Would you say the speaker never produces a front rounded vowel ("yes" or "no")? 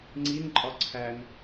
yes